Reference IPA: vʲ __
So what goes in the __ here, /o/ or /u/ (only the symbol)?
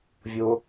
o